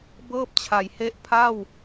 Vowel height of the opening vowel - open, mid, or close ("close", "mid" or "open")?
mid